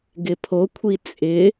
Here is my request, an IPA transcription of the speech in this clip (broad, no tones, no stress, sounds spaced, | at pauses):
ɡ ɪ pʰ o kʷʰ i t͡sʼ ɪ